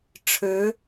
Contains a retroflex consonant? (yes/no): yes